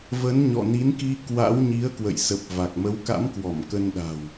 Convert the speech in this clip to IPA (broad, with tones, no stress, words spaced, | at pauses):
və˨˦nɲɔ̰˧˨ni˨˦nki˧ kwa̰˧˥w ɲi˨˦ə̯kwə̰˧˨jsə˨˩p̚ va˨˩k̚mə˨˦wka̰˧˥mkwɔ˧˩m kə˧nɗa̤˨˩w